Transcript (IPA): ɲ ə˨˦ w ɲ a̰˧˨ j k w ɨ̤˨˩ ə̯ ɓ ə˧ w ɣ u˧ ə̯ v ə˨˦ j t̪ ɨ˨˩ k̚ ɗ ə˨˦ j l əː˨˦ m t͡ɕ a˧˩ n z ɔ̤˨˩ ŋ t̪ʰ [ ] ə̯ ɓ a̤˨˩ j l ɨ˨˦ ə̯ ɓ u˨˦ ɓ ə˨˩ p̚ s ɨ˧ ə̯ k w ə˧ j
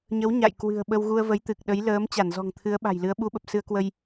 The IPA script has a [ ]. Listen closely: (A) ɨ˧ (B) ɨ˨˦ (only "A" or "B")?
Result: B